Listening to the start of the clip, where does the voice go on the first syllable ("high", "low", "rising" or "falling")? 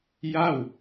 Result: falling